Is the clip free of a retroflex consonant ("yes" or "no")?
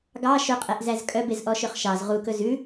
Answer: yes